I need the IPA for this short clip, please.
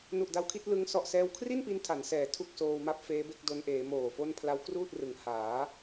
n u˨˩ ʔ d a˦˥ w kʰ i˦˥ t̚ l ɯ˦˥ ŋ s ɔ˨˩ ʔ s ɛː˧ w kʰ r i˥˩ n p i˧ n tʰ a˩˦ n s ɛː˩˦ tʰ u˥˩ k̚ s oː˧ w m a˥˩ p̚ f eː˦˥ b e˥˩ k̚ d o˧ n ʔ eː˩˦ m oː˨˩ f o˥˩ n pʰ l a˦˥ w k r uː˥˩ t̚ r ɯ˩˦ ŋ h aː˩˦

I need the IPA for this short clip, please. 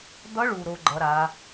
d̪ ʌ˧˥ ɭ u˨ ɾ o˧˥ ɡ͡ǃ ʌ˧˥ ɾ a˧˥

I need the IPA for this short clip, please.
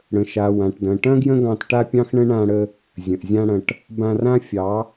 ɽ ə̃˨ ʃ a˨ w ã˨ ʈ d ɐ̃˨ ʈ ɐ̃˦ ɡ j ə̃˦ ɡ ɑ̃˧ t ʈ a˦ pʲ ɑ̃˦ x ɳ ə̃˦ ɳ ã˧ ɽ ə˧ | zʲ ə̃˨ ʔ zʲ ã˦ ɽ ɐ̃˧ ʈ | b ã˧ r ã˦ fʲ ɑ˨˦

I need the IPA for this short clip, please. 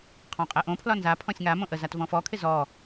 qʰ ɔ̃ qʼ ɛ ʔ õ pʰ l ɒ n z a pʰ ɔ̃ sʲ ŋ a m õ ʔ ə z a t v ɔ̃ f ɔ kʰ ɪ z ɔ

